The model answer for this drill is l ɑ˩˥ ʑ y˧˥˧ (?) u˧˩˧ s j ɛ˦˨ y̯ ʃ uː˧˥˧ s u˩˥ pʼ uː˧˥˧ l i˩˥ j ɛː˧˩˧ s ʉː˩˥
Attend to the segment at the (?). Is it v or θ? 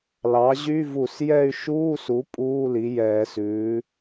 v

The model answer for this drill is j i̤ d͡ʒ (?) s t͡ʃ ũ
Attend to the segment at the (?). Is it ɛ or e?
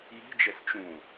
ɛ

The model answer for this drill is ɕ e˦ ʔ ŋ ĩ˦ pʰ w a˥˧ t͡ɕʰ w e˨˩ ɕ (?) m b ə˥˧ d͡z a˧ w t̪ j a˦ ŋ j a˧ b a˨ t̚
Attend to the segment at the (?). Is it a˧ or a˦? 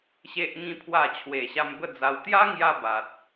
a˧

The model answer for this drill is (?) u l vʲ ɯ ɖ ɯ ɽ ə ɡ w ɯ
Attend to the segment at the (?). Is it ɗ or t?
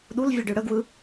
ɗ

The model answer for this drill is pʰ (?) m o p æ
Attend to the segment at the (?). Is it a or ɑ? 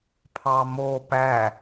ɑ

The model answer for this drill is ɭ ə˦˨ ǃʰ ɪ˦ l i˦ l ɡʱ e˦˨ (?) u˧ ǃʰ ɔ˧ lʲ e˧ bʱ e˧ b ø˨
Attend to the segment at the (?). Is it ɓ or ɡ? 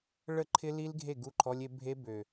ɡ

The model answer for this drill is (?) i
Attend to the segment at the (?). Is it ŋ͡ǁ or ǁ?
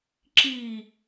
ǁ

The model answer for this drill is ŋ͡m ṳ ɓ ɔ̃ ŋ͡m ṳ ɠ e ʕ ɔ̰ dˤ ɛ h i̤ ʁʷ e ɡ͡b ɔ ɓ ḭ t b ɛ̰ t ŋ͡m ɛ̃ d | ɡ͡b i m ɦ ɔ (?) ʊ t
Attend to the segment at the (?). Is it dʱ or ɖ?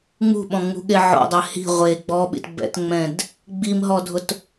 dʱ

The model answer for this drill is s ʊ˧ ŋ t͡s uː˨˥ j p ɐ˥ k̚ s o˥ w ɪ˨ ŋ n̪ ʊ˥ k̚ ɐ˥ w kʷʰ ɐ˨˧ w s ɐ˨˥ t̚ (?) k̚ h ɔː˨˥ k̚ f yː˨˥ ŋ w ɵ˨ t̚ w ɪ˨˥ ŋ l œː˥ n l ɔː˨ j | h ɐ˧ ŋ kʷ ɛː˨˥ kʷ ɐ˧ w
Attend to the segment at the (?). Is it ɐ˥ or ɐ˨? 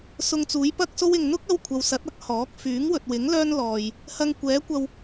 ɐ˥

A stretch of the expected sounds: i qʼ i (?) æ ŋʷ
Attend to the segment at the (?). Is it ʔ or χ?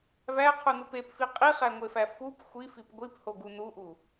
χ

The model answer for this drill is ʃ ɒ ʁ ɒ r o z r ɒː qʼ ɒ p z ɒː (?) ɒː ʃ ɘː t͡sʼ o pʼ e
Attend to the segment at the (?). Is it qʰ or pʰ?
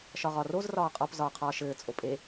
qʰ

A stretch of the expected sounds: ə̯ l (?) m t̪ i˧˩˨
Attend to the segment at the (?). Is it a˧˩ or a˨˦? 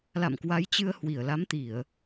a˨˦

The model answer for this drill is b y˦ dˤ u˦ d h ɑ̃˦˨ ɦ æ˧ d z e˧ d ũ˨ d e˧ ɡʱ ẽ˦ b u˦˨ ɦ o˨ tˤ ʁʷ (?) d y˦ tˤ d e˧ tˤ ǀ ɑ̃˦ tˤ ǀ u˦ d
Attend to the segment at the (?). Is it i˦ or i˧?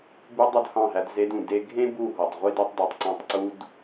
i˦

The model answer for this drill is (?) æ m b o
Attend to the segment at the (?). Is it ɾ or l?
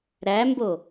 ɾ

